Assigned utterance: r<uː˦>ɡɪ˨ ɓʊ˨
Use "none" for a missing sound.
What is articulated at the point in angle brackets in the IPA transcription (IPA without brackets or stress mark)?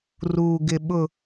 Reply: uː˨